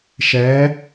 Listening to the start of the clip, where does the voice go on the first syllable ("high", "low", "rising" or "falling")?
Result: rising